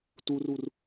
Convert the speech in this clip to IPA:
turur

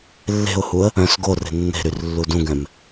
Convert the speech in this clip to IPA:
lːe̤ʊ̯huə̯ | œ̃s ɡore̤ nːe̤ɾyr lːudũɡɛ̃m

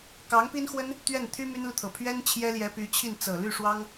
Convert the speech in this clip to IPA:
kɑ˧˥ŋpi˥nxwə˥n | t̪ɥɛ˥˩n t̪ʰy˥ my˥nlu˨t̪ʰɤ˨˩ pʰɥɛ˥n t͡ɕʰjɛ˥ljɛ˧˥py˧˥t͡ɕʰi˥˩n t͡sɤ˨˩ly˥˩ʂwɑ˥ŋ

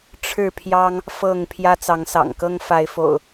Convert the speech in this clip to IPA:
ʈ͡ʂʰɻ̩˥˨ pʰjɑ˦ŋ | fɤ˥˨ŋ pʰjä˦t͡sɑ˨˦ŋsɑ̰˨˩ŋkɤ˦ŋ fa˨˦ɪ̯fo̰˨˩ʊ̯

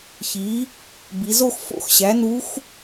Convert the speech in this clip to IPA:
çi˩˥ | bi˩˧zo˥˧x fo̰˧˥xɕæ˩˥nu˧˥x

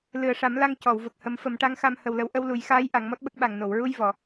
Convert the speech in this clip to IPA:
lɨ˨˩ə̯ʂa˨˩˦mla˧ŋ cɔ˨˩˨wvə˨˩k̚hə˨˩˦m fə˨˩˦mʈa˧˥ŋxa˧m hə˧wlə˧˥w ʔə˧wlu˨˩˦j xaː˧˥j ʔa˨˩˦ŋmɔ˦˥t̚ɓə˦˥k̚ɓa˨˩ŋ no˨˩˨wɹu˧j vɔ˨˩˨

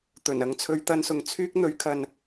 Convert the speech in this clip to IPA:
t̪ɵ˨˩n ɐ˨˧ŋt͡sʰɵ˨˧ɥt̪ɐ˧nsʊ˨ŋ t͡sʰyː˥k̚ n̪ɵ˨˥ɥkʰɐ˨n

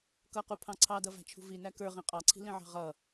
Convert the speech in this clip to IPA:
kʌqupʰɑ̃ ǀʰɑdʌvæ̤t͡ʃʰṳ vinæ kə˞ʁĩ qʼɑǀʰi̤lĩʕɑ̤ ʁʌ

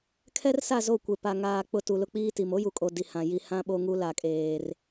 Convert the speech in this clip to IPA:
kʰɛ˦rsa˦˨ zo˦˨kʷe˨pa˨ ŋaː˨ k͡pʊ˨ tu˨lʊ˦ k͡piː˦ti˨m o˦ju˨kʼo˨ di˨hã˨ ji˨hã˦ ɓo˦ŋu˦ la˨kʼeː˨r

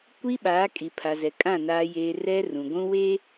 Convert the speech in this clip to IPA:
kʷi˦ɓaː˨˦kʼi˨ pʰa˨zɛ˨kʼã˦˨ naː˦jeː˦ rɛ˦rũ˨ɡʷũ˦we˦

